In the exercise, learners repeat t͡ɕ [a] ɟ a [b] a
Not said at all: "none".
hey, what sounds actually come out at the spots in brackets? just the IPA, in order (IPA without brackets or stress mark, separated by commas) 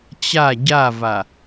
a, v